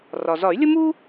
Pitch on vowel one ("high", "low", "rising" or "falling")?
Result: low